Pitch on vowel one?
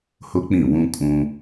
high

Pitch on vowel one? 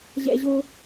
high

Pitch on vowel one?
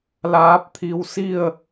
rising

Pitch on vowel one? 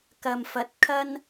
low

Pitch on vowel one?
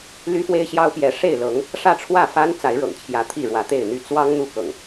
high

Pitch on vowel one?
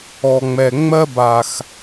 low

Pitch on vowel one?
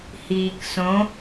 low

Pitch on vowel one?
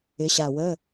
rising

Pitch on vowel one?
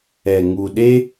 low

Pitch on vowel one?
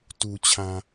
low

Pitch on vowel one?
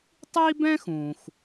high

